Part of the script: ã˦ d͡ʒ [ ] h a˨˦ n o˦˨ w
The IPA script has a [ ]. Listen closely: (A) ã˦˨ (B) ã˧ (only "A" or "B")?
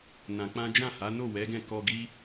A